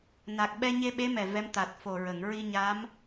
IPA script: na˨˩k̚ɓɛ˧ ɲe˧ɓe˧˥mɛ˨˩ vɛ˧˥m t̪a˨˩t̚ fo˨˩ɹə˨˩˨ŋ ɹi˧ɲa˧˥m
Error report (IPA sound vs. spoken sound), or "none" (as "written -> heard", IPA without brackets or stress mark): none